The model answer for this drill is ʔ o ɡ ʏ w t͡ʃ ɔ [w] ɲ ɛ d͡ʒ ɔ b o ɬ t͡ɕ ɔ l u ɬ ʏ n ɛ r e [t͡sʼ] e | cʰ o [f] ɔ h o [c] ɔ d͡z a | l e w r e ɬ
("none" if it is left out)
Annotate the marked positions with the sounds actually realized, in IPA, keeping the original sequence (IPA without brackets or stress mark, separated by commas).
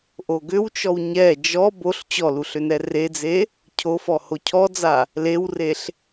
w, d͡z, f, cʰ